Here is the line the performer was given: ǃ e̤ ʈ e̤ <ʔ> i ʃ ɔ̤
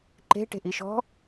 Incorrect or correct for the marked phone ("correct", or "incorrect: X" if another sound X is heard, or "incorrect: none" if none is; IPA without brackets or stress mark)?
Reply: correct